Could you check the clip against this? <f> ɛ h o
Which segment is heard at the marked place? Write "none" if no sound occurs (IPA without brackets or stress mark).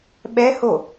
ɓ